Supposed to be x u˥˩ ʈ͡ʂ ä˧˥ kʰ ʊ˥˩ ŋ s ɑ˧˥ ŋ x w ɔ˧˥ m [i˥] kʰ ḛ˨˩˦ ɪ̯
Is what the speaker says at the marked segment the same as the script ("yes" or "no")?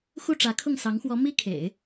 yes